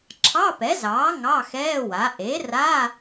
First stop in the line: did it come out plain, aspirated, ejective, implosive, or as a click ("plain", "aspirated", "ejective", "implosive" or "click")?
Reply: click